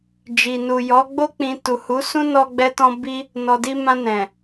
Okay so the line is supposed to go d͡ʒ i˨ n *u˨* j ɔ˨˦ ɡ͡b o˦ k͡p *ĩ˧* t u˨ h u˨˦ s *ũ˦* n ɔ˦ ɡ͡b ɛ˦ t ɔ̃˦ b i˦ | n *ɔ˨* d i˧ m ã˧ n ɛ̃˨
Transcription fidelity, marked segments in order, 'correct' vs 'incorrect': correct, correct, correct, correct

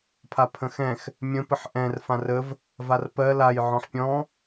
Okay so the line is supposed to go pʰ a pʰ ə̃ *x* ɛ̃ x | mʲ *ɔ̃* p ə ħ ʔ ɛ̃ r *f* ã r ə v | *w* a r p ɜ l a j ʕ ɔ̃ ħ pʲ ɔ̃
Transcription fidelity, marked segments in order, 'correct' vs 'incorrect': correct, incorrect, correct, incorrect

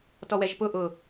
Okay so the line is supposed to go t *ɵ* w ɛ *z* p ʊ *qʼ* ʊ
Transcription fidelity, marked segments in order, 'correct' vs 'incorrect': incorrect, incorrect, incorrect

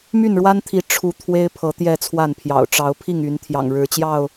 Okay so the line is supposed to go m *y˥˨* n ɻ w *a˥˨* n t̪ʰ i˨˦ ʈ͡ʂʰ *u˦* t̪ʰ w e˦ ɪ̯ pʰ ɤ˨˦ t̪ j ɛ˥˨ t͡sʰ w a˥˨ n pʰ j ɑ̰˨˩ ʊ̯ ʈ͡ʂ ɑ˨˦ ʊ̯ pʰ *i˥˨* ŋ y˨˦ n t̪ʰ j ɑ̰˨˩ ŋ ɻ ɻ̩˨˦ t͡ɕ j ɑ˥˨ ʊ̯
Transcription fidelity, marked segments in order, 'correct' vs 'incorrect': correct, incorrect, incorrect, correct

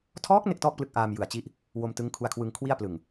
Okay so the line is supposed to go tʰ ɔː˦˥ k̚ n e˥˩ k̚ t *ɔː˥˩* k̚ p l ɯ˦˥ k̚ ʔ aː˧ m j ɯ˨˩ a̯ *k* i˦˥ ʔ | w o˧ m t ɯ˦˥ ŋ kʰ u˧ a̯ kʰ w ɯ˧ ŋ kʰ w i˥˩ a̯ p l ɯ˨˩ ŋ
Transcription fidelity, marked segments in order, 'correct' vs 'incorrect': correct, incorrect

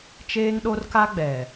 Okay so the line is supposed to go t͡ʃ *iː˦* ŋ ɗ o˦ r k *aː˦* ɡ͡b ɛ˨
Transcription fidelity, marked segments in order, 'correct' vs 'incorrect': incorrect, incorrect

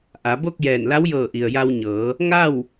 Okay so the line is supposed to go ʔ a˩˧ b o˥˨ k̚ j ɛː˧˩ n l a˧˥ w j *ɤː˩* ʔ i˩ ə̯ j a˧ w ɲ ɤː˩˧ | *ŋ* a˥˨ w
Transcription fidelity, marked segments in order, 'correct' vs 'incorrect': incorrect, correct

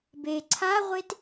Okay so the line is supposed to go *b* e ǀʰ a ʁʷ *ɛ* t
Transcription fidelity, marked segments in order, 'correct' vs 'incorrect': correct, incorrect

